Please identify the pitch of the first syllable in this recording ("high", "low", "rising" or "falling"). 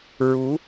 rising